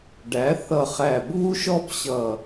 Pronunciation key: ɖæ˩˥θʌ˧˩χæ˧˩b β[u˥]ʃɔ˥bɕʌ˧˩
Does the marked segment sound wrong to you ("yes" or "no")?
no